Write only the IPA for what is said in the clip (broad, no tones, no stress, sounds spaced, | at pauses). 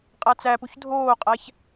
qʼ æ t͡s æ p u ç dʱ oː qʼ æ ç